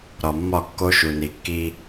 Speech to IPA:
ɾ ɒ˨ mː ɒ˦˨ kː o˦ ʃ u˨ n i˨ kː i˦

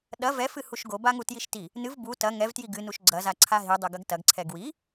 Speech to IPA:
ɗ ɐ v ɛ f ɨ h u ʃ ɡ o b a ŋ u t j i ʃ t i | n ɨ v b u t ɐ ŋ ɛ v t j i ɡ ɨ n u ʃ ɡ͡ǀ ɐ z a ǀʰ a ɦ i dˤ ɘ ɡ ɐ ɡ t ɐ ɡ ǀʰ ɛ ɡ w i

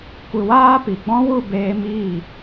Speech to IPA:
kʷ ɨ˨ w aː˧ p i˨ ɡ͡b ɔ̃˦ w u˦˨ b eː˧ m iː˦˨

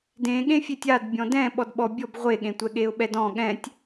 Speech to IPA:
d ẽ ɠ ẽ fʲ e tʲ a d bʲ ɔ̃ d ɛ̃ ɓ ɔ d ɓ ɔ bʲ ɔ b ʁʷ e ɠ ẽ tʷ ɛ ɠ e ʊ̯ ɓ ɛ d ɔ̃ ɠ ɛ̃ tʲ

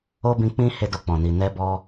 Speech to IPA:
o˦ b ĩ˧ k͡p ĩ˦ h e˦ d o˧ k͡p ɔ̃˨ n i˨ n ɛ˧ b ɔ˧

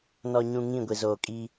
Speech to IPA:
n ɔ˨ ɲ ũ˨ ŋ ĩ˦˨ ɡʷ i˨ z oː˨ kʼ iː˦

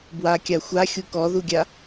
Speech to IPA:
b w a kʲ a xʷ a xʲ u k ɔ ð u ɡʲ a

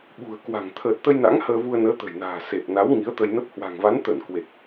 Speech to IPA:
ɓ ṳ˨˩ ə̯ k w a̤˨˩ ŋ t̪ʰ əː˨˩ t̚ t̪ ə˧ j n a̰˧˥ ŋ h əː˧ v u˧ ə̯ n əː˨˦ t̪ ə̤˨˩ j n a̤ː˨˩ s e˨˩ p̚ n a˨˦ w ŋ i˨˦ ə̯ t̪ ə˧ j n ə˦˥ p̚ h w a̤˨˩ ŋ v a˨˦ n t̪ ə˧˩ n k w e˨˩ k̚

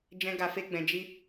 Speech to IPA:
d͡ʒ ɛ̃˦ ɡ a˧ f e˦ ɡ͡b ɛ̃˧ d͡ʒ i˦

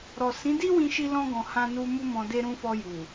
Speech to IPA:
ɾ ɔ˨ s ĩ˨˦ d i˦ w ĩ˧ ʃ i˧ l ɔ̃˧ ɡ ɔ̃˨ h ã˧ n u˧ m u˦ m ɔ̃˧ d e˧ ɾ ũ˧ f ɔ˧ j u˨

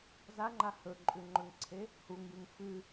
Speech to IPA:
z a ŋ͡ǃ a h ɵ ǃʼ ʉ ŋ͡ǃ ɵ ŋ ǀʰ e | h u ŋ j ɨ ŋ f ɨ

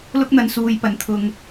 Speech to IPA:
l ʊ˥ k̚ n̪ ɐ˧ n s uː˨˧ j p ɐ˨˩ n t̪ʰ ʊ˨ ŋ

